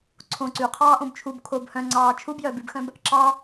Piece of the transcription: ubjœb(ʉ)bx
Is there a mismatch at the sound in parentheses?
no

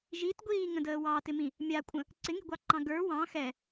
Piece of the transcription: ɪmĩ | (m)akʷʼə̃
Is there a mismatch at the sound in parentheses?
yes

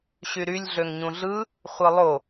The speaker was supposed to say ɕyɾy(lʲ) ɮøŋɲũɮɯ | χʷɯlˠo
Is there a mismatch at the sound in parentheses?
no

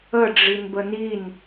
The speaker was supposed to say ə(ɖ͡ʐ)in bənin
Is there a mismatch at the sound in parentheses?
no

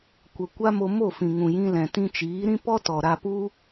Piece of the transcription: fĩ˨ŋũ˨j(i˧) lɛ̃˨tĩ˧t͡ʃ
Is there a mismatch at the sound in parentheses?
yes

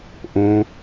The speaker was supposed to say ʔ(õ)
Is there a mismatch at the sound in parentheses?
no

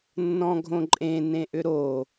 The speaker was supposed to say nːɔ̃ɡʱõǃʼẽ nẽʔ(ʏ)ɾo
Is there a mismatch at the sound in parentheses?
no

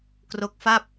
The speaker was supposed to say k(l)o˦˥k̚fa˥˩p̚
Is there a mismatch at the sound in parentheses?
yes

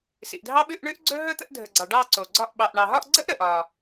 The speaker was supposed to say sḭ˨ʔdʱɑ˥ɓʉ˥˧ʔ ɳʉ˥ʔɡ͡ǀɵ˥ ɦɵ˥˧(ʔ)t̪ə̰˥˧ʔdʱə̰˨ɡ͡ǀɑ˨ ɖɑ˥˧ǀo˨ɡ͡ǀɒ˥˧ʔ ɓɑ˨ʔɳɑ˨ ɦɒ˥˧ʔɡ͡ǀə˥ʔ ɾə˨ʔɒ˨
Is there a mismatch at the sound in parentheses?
yes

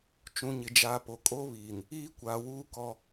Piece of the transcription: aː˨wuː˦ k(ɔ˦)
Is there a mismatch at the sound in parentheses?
no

